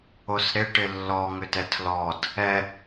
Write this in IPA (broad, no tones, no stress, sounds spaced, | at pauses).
o s ɾ ɪ ʈ ɪ lː ɔ ŋ ʏ t ɛ tʰ l ɔ d | ɛ